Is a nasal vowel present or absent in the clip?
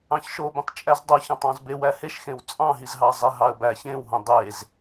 present